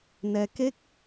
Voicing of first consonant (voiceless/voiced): voiced